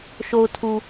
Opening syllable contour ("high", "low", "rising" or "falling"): low